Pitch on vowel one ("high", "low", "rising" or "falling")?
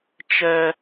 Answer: high